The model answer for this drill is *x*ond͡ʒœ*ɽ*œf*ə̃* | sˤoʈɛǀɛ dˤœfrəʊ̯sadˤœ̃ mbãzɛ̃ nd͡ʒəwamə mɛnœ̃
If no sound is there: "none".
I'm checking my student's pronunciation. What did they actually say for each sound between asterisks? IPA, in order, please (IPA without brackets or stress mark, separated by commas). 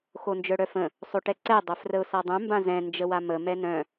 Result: x, ɽ, ə̃